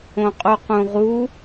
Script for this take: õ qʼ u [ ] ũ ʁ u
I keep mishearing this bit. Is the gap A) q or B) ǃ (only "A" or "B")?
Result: A